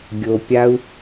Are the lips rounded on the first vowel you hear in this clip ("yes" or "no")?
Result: yes